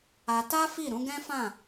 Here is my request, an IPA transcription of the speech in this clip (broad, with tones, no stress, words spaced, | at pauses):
a˧ta˦ fi˦˨ɾũ˨˦ɡɛ̃˦fã˦˨